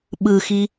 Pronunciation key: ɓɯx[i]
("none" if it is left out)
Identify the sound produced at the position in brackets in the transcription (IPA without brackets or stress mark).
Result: i